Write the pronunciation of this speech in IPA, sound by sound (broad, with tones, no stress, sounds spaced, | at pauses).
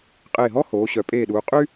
qʼ eː˧˩ ɦ ɔ˥ h oː˩˧ ɕ œ˩˧ pʼ eː˧˩ ɗ uː˩˧ qʼ y˥